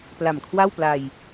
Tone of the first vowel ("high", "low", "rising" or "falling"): low